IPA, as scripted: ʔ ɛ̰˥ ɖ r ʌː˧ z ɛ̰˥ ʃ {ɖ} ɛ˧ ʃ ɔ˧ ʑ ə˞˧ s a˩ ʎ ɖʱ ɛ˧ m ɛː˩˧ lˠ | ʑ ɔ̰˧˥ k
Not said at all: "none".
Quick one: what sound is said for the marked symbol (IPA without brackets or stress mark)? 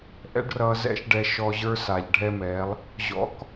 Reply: ɖ